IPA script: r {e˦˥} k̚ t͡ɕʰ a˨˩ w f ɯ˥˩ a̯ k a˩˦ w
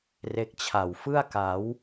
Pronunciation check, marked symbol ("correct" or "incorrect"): correct